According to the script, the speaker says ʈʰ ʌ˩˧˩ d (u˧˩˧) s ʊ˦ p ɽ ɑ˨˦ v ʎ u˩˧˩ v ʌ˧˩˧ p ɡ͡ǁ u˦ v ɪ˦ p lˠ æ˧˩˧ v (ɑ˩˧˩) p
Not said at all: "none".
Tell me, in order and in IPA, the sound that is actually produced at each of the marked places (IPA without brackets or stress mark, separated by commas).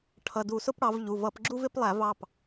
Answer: u˧˩˧, ɑ˩˧˩